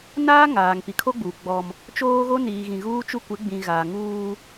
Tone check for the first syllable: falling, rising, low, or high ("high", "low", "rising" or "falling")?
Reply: high